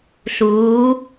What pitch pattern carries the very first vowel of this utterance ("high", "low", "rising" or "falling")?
rising